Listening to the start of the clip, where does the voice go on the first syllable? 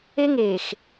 high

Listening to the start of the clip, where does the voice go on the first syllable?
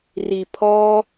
low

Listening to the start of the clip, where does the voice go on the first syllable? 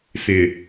low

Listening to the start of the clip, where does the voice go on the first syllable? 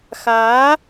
rising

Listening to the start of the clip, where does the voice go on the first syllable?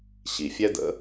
low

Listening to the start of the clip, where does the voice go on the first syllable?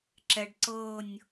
low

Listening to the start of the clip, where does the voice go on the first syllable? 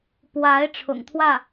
rising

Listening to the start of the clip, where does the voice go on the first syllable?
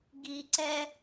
low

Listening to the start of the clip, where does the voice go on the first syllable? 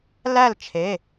falling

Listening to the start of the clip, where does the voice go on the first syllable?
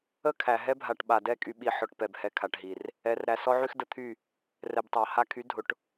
falling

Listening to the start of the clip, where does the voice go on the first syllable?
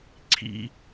high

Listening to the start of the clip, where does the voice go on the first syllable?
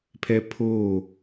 high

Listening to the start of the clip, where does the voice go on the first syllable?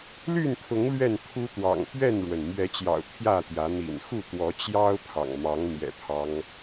falling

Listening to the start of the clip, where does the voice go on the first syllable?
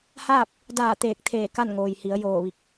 falling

